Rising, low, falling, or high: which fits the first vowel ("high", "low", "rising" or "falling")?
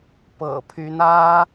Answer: low